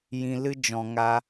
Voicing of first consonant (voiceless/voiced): voiced